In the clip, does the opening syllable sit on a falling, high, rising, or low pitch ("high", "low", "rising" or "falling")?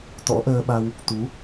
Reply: rising